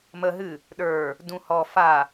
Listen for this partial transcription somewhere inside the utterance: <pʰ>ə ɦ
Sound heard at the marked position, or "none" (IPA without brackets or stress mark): m